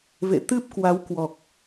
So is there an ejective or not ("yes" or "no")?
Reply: no